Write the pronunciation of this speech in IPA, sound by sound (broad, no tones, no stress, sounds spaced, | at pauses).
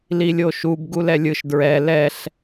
l i lʲ o ʃ u b ɡ u l ɛ lʲ ɯ ʃ d ɹ ɛ l ɛ ɬ